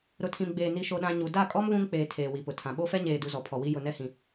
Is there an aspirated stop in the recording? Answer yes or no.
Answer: yes